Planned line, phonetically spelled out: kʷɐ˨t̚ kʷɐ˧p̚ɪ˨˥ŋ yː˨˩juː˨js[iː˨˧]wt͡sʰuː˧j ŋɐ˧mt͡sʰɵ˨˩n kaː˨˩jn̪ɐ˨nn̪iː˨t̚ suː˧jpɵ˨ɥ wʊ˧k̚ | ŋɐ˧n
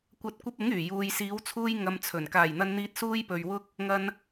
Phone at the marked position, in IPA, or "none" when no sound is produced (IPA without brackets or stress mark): iː˨˧